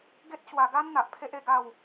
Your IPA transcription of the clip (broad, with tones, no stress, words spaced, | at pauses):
ɡe˦t̚ ɕwa˧ ɡa˦n n̪a˨ʔpʰe˦ʔe˥˧ ɡa˥˧w